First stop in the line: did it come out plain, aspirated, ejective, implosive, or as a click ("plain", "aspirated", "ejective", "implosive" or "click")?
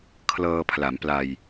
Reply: aspirated